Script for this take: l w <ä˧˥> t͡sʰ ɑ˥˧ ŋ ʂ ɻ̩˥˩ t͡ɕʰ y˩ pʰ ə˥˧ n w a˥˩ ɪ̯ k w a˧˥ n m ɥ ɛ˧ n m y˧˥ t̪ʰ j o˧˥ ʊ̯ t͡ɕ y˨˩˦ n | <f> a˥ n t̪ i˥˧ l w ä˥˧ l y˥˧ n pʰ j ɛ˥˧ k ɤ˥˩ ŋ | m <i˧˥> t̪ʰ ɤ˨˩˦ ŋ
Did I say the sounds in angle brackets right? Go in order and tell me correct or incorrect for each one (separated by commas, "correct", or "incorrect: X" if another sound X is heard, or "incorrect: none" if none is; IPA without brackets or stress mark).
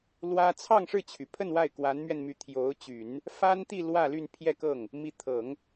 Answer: incorrect: ä˥, correct, correct